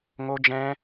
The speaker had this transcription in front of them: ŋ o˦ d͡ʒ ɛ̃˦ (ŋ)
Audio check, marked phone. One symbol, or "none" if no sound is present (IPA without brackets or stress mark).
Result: none